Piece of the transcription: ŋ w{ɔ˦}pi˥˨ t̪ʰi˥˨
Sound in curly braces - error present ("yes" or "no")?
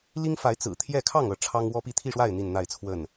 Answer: no